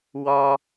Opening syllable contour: high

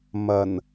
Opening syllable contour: low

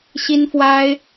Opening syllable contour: high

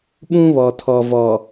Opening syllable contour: high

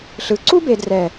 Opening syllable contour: low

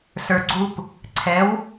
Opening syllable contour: low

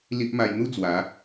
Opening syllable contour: high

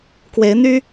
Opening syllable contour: rising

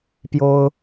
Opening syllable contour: high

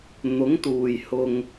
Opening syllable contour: rising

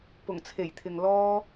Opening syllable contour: low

